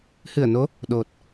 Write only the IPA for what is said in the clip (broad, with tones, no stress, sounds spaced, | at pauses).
h ɨ˧˩ ə̯ n o˨˦ | ɗ o˨˩ t̚